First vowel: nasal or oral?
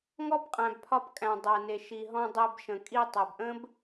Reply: oral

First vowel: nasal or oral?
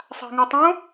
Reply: oral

